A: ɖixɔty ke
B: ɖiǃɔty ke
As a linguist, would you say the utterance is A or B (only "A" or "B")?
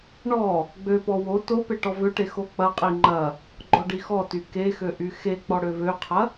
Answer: A